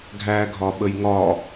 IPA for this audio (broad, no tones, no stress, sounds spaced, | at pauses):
ɡʱ æ ɡʱ ɒ ɓ ə j ŋ ɒ